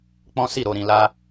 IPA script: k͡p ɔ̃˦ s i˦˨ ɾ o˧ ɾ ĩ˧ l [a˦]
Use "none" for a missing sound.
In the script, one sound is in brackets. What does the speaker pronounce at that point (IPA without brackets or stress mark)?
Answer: a˦